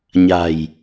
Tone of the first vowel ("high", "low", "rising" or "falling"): low